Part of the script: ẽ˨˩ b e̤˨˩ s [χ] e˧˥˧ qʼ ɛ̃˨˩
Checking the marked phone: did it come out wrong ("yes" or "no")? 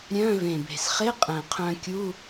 no